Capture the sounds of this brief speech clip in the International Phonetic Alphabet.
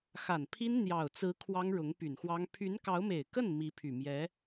xa˨˩npʰi˥n n̪jɑ˨˩ʊ̯t͡sɹ̩˧˥ kʰwɑ˥ŋɻʊ˧˥ŋpy˨˩nxwɑ˥ŋ pʰy˧˥nkɑ˧˥ʊ̯me˨˩ɪ̯kə˥˩n mi˧˥pʰy˨˩ mjɛ˧˥

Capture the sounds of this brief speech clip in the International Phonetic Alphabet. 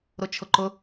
ɾʊt͡ʃʰʊǃʊ

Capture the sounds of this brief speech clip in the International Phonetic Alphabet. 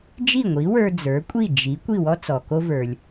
d͡ʒi˥˩ŋʷi˩˥wə˞˧ d͡zə˞˩˥kʷʼi˥˩ d͡ʒi˩˥ kʷi˥˩wɔ˥ t͡sɔ˩ko˧və˞˩lʲ

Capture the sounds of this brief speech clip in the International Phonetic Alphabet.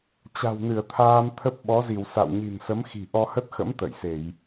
t͡ɕa̤˨˩wnɨ˧˩ə̯t̪ʰaː˧mt̪ʰə˦˥p̚ ɓɔ˨˦zi˧˩w sa̰˧˨w ɲi̤˨˩nsə˨˦mxi̤˨˩ ʔɔ˧hə˦˥t̚xə̰˧˥m t̪ə̰˧˨jse˧˩˨j

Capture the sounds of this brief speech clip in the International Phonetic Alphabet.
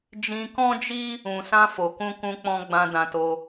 d͡ʒĩ˧kɔ̃˦d͡ʒi˦ | ũ˨sã˧ fo˨kũ˧kũ˧k͡pɔ̃˧ ɡ͡bã˧dã˧to˧

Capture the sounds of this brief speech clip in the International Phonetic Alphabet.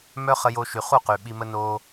mœ˦χə˧jo˧ʃy˨ χu˦˨qy˨ ɓi˧mə˦ no˧

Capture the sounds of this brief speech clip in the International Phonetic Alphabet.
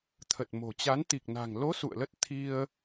t̪ʰə˨˩t̚mo̤˨˩t͡ɕa˨˦n t̪i˨˩k̚na̤˨˩ŋlo˨˦ sṵ˧˨ə̯lə˦˥t̚ t̪ʰi˧ə̯

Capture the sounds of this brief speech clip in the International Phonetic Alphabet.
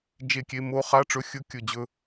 d͡ʒe˧˩kʲe˧ mo˧χa˧˥˧ʈ͡ʂɵ˧ xʲɵ˧˥˧ kʲɵ˧˩d͡ʑɵ˧

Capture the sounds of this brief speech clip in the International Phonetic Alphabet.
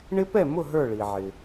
ɳɪ˦˥pɛ˥˩mʊ˥˩ ɦə˞˥˩ɭi˩ ʕɪ˩

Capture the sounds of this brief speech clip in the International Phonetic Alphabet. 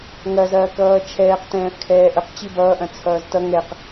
ŋɐzɐː kʌːt͡ʃʰɛːq tɛ̃ːfkʰɛːʔəq t͡ɕibʌːʔɐ̃ t͡sʰʌːztʌ ŋɛq

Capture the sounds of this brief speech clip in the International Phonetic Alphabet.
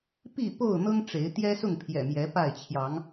pi˥˨po˥˨ʊ̯n̪ɤ˦ŋ ʈ͡ʂe˨˦ɪ̯ t̪jɛ˦sʊ˥˨ŋpʰjɛ̰˨˩mjɛ˨˦ pa˥˨ɪ̯ t͡ɕʰjɑ˨˦ŋ

